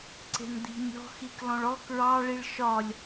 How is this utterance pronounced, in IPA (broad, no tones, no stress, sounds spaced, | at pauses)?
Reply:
ǀ e̤ n d̪ i̤ nʲ ɔ̤ x i k l ɔ̃ ɭ ɔ k ɹ ɑ ɭ i ɭ ʃ ɒ lʲ